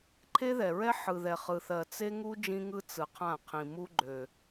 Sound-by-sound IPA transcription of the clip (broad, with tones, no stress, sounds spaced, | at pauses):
ǃʰ e˦ ð ɛ˨ ɹ ɛ˦ ħ ɯ˨ ð ɛ˨ χ ɯ˨ θ ɜ˨ t͡s e˦ ŋ u˦ d͡ʒ ĩ˦ ŋ ɯ˦ t͡s ɯ˨ qʰ ã˦˨ qʰ ĩ˨ m u˦ ɡ͡ǃ ø˨